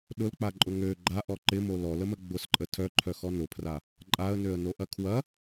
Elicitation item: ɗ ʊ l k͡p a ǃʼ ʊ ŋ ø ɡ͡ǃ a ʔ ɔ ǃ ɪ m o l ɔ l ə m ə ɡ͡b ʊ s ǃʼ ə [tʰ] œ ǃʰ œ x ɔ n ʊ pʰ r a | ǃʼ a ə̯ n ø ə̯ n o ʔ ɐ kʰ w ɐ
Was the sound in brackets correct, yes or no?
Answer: yes